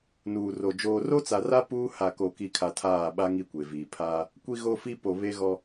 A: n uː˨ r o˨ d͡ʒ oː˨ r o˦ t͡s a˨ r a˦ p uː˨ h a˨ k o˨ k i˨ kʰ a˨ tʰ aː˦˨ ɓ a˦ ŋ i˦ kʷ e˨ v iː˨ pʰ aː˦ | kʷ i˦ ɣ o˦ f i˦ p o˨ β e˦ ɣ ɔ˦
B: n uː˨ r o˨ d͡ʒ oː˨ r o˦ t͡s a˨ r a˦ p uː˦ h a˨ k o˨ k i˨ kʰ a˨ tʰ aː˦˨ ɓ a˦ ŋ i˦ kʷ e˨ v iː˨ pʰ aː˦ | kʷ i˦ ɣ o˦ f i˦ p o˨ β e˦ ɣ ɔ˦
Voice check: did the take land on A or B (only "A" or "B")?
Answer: B